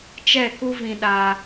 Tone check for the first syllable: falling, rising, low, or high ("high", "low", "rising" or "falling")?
falling